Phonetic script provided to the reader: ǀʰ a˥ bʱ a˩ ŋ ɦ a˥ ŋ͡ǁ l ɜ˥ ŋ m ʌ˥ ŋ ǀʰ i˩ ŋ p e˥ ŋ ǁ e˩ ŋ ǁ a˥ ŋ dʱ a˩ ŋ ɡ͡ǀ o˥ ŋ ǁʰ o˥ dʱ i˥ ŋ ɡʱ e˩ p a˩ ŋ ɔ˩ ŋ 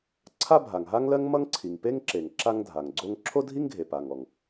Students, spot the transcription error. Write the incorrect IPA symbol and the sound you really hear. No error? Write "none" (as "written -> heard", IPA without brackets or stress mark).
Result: ŋ͡ǁ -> ŋ